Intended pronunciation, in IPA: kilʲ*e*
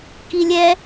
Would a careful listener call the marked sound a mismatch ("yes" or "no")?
yes